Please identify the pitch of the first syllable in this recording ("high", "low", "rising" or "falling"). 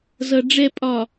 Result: low